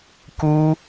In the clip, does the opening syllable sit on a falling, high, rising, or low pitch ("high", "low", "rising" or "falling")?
high